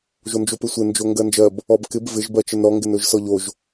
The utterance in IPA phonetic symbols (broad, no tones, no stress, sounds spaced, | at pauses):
ʒ o n d͡ʒ o p ɪ sʷ ɪ n d͡ʒ o ŋ ɡ ɜ n d͡ʒ ɜ b | ɔ b k ɪ b v ɪ ʒ b ɜ t͡ʃ ə n ɾ ɔ ŋ ɡ ɪ n ɵ ʒ s ɔ ʎ o ʒ